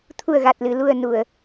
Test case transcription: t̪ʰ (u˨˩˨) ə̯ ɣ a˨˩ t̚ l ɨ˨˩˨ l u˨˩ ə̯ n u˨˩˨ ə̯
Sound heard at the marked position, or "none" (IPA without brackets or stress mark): u˨˩